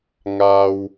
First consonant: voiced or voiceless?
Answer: voiced